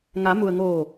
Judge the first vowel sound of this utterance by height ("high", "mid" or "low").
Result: low